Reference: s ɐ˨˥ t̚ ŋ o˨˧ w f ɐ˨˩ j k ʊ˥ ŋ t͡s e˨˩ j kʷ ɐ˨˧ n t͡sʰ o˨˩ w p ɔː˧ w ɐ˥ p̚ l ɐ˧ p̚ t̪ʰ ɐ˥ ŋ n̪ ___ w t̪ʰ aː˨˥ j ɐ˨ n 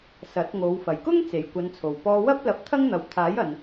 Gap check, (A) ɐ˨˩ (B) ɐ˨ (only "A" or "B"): B